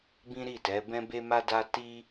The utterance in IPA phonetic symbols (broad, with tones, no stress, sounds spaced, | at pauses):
b ĩ˦ ɾ i˦˨ t ɛ˨˦ b ɛ̃˦ b e˦ m a˦ d a˦ t i˦